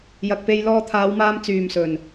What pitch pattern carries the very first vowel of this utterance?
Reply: low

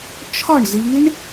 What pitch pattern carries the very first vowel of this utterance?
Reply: falling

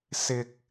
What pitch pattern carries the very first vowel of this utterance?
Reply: low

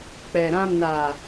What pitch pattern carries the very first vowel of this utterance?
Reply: low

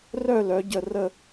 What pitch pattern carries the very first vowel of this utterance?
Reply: falling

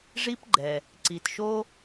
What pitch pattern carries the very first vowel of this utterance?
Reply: high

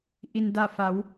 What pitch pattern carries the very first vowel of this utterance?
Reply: low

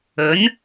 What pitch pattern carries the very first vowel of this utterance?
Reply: rising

